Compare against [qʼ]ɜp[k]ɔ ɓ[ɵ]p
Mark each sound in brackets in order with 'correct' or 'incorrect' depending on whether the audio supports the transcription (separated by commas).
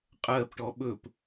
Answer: correct, incorrect, correct